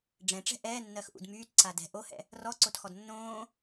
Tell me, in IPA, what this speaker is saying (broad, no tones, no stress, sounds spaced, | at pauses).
ɖ͡ʐ ɛ̃ ʈ͡ʂ ɛ̤ ʔ ɛː nː ɜ x ʔ ṵ d m yː t ǀ a d ɛ̤ ʔ o h ɛ̰ | r ɔ ǀ o t x ɔ d nː õː